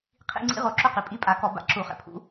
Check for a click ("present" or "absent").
present